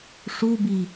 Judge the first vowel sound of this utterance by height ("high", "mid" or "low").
high